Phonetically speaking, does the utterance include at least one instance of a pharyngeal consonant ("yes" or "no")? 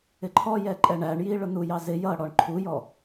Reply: no